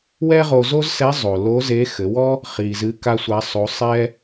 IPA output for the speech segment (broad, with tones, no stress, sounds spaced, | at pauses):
w ɛ˥ ʁ o˧ z o˥ z s ɛ˧˥ zˤ o˩ l o˧˥ z e˧˥ x ɘ˩˧ w ɔ˥ | χ i˩ z ɨ˧˥ k a˥ sʷ a˧˥ sˤ o˧˥ sˤ ɛ˥